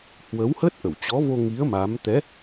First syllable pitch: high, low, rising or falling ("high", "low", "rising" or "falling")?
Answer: rising